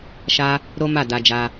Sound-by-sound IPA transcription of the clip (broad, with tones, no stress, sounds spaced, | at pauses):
ʃ a˦ | ɾ o˦ m a˦˨ d a˧ d͡ʒ a˧